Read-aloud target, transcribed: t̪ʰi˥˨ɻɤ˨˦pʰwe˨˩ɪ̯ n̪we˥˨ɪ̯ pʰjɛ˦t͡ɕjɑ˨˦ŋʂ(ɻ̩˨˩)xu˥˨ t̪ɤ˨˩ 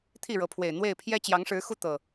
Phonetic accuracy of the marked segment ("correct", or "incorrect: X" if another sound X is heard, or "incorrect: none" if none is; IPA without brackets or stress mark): incorrect: ɻ̩˨˦